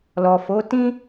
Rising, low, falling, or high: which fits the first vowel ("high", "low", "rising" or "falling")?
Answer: low